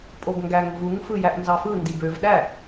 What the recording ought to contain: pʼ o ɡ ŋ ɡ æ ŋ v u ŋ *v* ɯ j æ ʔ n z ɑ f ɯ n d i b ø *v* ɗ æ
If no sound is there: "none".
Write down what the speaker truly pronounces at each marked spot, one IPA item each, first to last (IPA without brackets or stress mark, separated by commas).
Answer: f, v